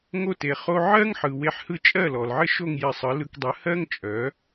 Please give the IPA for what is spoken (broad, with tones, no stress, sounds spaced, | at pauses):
ŋ o˥˩ t e˩ χ o˧ ʕ ɜ˥ ŋ ħ ɯ˩ w e˧ ħ h ɯ˥˩ t͡ʃʼ ɜ˥˩ l ɔ˩ l ʕ ɘ˥ ʃ o˥˩ ŋ j ɘ˧ sˤ ɯ˩˥ l ɯ˧ k dˤ ɯ˩˥ h ɜ˥ ŋ t͡ʃʼ œ˩˥